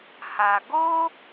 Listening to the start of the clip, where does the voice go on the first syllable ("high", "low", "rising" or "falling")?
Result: low